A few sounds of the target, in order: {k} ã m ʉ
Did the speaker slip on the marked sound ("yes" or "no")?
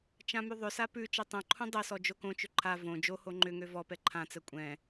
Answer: yes